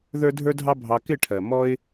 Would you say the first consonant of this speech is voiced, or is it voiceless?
voiced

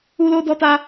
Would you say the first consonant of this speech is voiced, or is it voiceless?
voiced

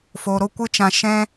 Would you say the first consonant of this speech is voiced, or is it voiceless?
voiceless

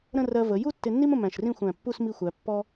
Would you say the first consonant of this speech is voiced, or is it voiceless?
voiced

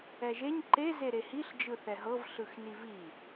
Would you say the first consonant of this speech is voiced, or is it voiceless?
voiced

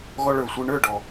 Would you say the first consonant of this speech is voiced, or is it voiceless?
voiced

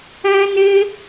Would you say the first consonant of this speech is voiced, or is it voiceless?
voiced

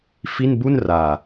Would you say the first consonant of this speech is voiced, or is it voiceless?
voiceless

